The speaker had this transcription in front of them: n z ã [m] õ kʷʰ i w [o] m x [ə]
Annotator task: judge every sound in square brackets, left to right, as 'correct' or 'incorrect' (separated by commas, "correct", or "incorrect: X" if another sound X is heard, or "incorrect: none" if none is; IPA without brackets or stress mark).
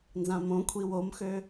correct, correct, incorrect: ø